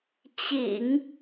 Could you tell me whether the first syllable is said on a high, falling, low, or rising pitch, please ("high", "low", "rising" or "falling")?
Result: low